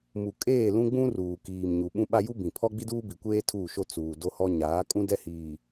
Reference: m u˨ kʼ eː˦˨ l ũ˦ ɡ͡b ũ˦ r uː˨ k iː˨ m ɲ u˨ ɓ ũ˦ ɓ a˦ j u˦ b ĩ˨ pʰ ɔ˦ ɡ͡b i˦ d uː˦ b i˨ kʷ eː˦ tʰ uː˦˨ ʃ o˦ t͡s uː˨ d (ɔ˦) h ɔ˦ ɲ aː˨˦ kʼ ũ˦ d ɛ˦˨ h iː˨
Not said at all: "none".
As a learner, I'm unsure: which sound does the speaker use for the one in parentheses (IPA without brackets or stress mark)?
o˦